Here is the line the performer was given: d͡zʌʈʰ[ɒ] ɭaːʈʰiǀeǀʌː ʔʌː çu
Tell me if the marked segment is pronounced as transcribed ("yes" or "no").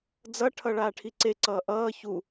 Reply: no